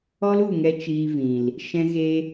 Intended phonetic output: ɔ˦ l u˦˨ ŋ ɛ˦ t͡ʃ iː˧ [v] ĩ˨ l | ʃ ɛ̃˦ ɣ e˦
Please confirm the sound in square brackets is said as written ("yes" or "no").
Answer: yes